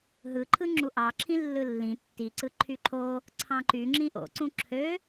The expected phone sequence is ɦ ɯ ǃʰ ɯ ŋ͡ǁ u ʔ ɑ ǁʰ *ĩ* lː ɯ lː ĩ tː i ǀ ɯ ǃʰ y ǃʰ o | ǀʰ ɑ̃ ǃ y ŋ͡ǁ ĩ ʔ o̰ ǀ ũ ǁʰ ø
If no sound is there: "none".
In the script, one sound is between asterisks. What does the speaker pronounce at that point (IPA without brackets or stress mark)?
ĩ